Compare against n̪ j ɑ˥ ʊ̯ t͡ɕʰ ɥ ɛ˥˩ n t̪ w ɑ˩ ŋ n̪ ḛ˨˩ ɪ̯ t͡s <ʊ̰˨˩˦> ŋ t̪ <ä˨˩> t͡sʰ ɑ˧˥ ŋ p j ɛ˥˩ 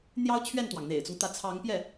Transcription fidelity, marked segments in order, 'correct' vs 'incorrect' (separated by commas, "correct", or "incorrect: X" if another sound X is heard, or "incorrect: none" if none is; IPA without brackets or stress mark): incorrect: ʊ˦, incorrect: ä˧˥